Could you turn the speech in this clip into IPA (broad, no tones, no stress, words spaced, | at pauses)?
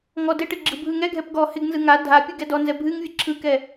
ŋɔ dɪʈɪ ɡ͡ǁɯbʱɯŋɛɡʱɛp ɡɔ hɪɡnzɯ ŋa dʱapʲɯ ɡɛdɔnzɛ bʱɨŋ vʲɨǁʰɯkɛ